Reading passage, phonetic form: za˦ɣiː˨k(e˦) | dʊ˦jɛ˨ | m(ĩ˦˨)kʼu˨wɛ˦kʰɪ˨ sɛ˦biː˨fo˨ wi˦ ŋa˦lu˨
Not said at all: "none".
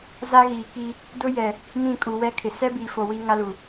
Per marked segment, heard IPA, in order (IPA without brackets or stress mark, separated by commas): i˦, ĩ˦˨